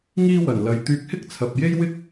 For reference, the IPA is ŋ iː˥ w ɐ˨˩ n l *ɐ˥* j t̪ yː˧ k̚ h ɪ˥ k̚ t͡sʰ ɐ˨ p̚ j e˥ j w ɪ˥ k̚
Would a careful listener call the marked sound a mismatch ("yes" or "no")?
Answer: yes